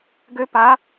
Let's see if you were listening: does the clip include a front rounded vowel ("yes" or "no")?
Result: yes